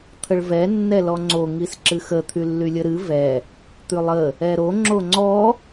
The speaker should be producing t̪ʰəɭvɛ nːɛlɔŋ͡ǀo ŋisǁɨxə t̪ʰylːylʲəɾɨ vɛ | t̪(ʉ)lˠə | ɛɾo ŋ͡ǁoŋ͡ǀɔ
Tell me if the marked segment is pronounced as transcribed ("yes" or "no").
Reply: yes